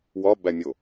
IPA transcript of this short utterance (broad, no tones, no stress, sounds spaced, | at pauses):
w ɒ b æ mʲ o